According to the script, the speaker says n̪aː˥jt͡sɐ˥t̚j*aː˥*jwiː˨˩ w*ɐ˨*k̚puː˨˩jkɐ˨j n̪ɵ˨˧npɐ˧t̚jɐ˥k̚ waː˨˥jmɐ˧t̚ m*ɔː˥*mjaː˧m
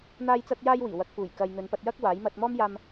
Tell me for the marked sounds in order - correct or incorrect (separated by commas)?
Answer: correct, correct, correct